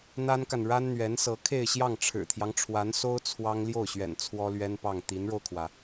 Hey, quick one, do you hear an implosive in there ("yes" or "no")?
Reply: no